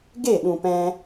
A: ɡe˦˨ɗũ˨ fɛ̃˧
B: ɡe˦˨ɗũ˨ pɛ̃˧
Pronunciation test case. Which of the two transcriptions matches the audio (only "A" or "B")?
B